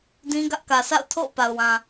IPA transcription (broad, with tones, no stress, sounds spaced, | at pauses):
d ĩ˦ ɡ ä˦ ʔ k ä˨ sʰ a̰˦˨ ʊ̯ tʰ o̰˦˨ ʊ̯ p a˨ ʊ̯ w ã˨